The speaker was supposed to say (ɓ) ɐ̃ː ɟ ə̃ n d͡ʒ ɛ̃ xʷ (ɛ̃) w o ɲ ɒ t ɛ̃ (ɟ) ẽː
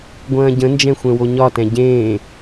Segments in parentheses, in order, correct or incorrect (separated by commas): incorrect, correct, correct